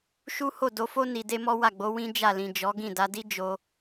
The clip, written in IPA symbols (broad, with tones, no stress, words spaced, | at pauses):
ʃu˦ho˦˨ do˧fo˦ ni˧de˦mɔ˦ wa˦˨ɡ͡bo˨˦ wĩ˦d͡ʒa˦˨lĩ˨ d͡ʒɔ˨˦ɡĩ˦˨da˨˦ di˦d͡ʒo˧